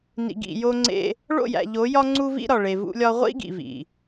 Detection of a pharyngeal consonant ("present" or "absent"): absent